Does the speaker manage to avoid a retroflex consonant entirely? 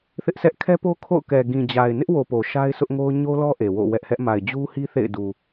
yes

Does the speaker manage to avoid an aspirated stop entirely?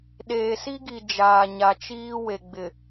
yes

